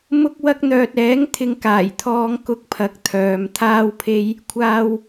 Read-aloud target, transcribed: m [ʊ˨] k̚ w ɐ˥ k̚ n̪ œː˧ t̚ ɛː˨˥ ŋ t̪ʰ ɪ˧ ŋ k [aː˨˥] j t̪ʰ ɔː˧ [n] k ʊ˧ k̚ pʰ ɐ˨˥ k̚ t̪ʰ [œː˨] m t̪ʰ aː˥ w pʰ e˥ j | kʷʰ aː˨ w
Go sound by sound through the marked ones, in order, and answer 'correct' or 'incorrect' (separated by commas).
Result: incorrect, incorrect, incorrect, correct